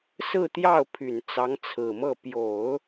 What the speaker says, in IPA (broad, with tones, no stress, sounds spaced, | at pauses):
s ɹ̩˥˧ t̪ j ɑ˥˩ ʊ̯ pʰ y˨˩ n t͡s ɑ˧˥ ŋ t͡sʰ ɹ̩˨˩ m ɤ˥˩ p j o˨˩˦ ʊ̯